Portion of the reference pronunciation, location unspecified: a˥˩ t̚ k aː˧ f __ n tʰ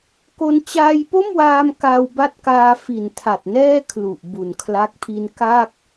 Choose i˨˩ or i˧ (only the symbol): i˨˩